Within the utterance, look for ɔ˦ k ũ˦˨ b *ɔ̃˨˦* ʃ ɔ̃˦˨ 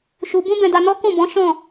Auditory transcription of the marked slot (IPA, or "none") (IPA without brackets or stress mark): ɔ̃˨˦